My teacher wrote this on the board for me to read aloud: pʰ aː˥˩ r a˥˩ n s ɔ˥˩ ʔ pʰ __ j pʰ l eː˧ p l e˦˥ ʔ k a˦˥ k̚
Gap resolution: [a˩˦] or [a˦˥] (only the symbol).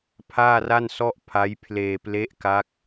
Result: a˦˥